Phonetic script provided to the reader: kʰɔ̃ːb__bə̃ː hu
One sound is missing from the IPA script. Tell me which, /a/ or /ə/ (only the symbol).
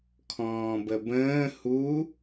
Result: ə